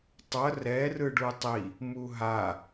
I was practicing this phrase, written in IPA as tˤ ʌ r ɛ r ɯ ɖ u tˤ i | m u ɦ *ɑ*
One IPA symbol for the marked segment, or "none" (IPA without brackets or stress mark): a